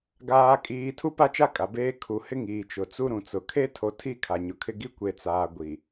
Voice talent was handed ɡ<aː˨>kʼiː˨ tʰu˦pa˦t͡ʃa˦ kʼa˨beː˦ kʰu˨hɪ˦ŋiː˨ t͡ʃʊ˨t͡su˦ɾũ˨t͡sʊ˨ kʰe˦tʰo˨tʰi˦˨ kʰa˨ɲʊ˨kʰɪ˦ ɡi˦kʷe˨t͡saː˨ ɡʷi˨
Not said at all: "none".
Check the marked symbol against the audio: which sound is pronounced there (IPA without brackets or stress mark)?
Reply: aː˨